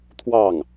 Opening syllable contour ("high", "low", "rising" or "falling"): falling